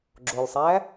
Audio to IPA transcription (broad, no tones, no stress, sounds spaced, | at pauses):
ɡ͡ǁ o lʲ sˤ æː